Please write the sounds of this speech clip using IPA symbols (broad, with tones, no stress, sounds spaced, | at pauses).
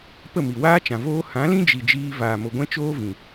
p ə˦˨ m i˨ w aː˦ t͡ʃ ã˨ v oː˦ h ã˨˦ l ĩ˦ d͡ʒ i˨ d͡ʒ iː˧ v aː˨ m o˨ ɡʷ ɛ̃˦ t͡ʃ oː˦ v ĩ˨